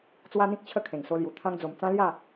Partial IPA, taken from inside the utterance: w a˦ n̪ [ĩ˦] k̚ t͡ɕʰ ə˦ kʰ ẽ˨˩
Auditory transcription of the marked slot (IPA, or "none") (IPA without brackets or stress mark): ĩ˦